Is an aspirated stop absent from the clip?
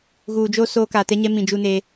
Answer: yes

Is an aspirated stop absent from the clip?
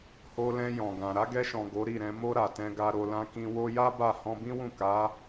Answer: yes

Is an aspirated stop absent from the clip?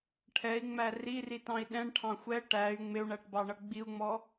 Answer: no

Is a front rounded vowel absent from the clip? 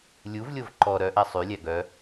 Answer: no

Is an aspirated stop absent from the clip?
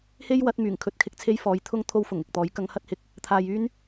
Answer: no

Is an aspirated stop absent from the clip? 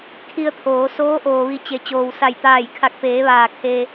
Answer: no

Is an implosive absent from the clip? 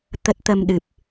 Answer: no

